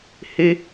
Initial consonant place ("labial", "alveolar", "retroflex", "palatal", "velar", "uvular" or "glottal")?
glottal